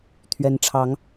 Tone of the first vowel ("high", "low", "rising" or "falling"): rising